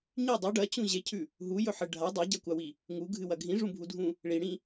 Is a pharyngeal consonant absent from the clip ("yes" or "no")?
no